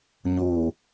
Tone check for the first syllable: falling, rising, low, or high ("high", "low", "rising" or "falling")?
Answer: low